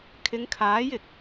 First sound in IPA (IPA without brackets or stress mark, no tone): kʰ